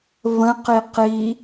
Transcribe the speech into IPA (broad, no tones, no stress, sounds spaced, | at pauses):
v ə̃ q i q i